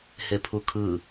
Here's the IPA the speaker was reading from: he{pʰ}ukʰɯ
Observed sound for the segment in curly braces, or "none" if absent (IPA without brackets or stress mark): pʰ